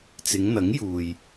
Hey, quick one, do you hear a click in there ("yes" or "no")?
no